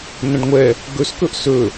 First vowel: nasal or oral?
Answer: nasal